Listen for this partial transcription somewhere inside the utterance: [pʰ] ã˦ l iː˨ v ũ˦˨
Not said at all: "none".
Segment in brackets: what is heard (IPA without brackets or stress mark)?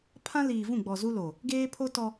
pʰ